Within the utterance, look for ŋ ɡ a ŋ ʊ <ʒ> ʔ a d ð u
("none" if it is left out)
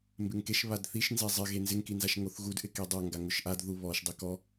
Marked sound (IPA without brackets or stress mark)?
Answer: ʃ